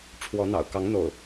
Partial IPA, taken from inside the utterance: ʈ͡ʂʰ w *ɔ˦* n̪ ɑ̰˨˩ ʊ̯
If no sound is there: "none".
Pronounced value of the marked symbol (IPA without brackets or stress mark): ɔ˨˦